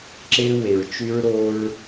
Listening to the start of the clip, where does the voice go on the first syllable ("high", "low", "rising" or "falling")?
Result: high